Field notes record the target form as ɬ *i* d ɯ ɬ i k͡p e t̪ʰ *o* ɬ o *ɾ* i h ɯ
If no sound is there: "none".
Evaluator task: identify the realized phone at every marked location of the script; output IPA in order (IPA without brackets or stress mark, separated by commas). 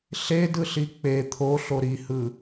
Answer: e, o, ɾ